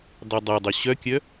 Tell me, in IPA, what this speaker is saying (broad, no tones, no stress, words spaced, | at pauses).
dɑdˤædˤɵ ɕœkʲœ